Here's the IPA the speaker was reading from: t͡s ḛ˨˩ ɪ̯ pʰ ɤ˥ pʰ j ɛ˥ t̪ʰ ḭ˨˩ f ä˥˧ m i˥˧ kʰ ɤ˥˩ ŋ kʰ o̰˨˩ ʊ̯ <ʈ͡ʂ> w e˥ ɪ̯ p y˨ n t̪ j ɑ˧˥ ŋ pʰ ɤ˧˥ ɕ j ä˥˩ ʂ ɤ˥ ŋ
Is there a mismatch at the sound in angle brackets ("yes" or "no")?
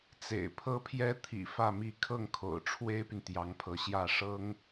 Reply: yes